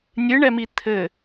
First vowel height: high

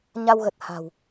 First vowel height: low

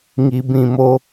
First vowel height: high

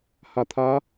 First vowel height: low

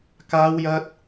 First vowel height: low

